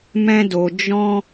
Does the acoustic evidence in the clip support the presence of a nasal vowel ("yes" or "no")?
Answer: yes